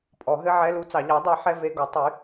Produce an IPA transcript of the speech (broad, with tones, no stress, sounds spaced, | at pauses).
pʼ ɔ˨˩˦ ɦ ɘ˧˥˧ ʕ ɛ˧˥˧ l u˧˥˧ t͡s ɑ˨˩˦ ʎ ɑ˩˥ dˤ ɛ˩˥ ħ ɛ˧˥˧ v e˧˥˧ ɡ ɔ˩˥ tˤ y˩˥